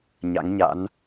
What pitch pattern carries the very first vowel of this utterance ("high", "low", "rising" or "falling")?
rising